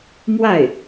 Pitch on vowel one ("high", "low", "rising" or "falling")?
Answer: falling